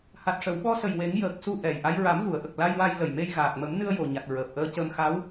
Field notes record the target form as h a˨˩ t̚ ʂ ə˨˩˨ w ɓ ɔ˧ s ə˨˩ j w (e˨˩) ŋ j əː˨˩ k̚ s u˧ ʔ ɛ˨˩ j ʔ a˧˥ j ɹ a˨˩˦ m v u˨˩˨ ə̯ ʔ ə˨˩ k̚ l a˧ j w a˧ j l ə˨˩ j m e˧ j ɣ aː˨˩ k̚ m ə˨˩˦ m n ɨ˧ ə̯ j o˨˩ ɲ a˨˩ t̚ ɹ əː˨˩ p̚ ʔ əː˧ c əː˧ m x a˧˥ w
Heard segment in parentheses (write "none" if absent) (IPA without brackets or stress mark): e˨˩˦